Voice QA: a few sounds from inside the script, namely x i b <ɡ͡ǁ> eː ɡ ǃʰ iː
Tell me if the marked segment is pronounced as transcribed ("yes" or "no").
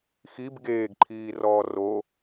no